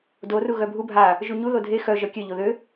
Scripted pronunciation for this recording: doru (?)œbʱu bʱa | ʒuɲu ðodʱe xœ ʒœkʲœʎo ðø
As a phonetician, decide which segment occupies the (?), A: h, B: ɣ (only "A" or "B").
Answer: B